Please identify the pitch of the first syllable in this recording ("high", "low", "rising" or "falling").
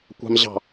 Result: low